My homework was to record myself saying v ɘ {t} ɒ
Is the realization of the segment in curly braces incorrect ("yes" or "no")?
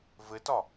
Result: no